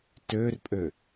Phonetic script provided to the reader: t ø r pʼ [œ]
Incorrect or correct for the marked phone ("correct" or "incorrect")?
incorrect